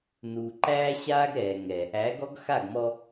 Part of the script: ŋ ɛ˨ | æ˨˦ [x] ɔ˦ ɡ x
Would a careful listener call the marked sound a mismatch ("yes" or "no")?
yes